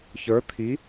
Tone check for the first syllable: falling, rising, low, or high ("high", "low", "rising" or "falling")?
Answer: rising